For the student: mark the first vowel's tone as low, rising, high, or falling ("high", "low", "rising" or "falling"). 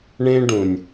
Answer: high